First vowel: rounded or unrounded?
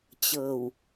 unrounded